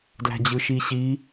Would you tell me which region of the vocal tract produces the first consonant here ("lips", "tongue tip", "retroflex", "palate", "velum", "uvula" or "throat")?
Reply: tongue tip